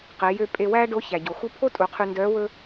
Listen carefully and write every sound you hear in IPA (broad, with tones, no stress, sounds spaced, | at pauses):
q e˩˧ j ø˧ pʼ e˧ w æː˥ ɖ o˧˥ ç æ˩ ɟ o˩ x u˥ pʰ o˥ tʼ u˩˧ qʰ y˧ n d œː˧˥ w ɵː˥